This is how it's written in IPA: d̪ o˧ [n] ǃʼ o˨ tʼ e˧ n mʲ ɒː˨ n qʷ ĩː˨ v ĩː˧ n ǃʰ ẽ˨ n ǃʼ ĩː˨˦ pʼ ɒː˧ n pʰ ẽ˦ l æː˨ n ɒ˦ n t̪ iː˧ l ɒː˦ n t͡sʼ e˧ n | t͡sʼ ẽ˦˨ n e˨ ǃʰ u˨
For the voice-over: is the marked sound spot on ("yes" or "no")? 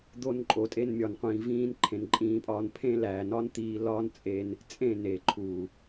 yes